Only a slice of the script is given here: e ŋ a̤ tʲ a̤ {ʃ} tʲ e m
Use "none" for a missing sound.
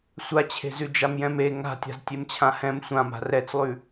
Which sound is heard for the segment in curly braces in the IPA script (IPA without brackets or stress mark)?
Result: z